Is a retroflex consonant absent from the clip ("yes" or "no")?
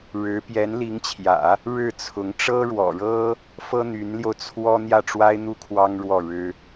no